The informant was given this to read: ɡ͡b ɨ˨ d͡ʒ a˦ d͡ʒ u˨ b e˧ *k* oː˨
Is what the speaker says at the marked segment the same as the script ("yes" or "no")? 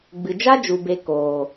yes